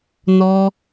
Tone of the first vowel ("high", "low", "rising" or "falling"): high